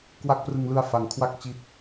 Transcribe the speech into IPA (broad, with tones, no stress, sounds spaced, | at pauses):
k w a˦˥ k̚ p r ɯ˧ ŋ l ɯ˧ a̯ f a˩˦ ŋ kʰ w a˥˩ k̚ t͡ɕ i˦˥ t̚